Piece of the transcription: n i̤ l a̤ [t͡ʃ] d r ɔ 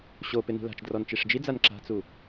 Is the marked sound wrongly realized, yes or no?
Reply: no